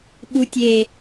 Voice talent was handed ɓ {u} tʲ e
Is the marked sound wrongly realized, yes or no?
no